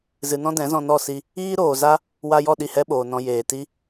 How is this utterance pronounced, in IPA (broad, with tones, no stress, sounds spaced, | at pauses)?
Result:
z ɨ˨ n ɔ̃˦ d ɛ̃˨˦ z ɔ̃˧ n ɔ˦˨ s i˧ | iː˦ ɾ oː˨ z a˦ | w a˧ j ɔ˦˨ ɗ i˦˨ h ɛ˦ ɓ oː˨ n ɔ̃˧ j eː˨ t i˦